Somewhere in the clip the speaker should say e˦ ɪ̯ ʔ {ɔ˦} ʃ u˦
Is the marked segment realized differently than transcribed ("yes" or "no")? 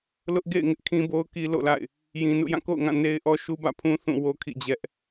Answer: no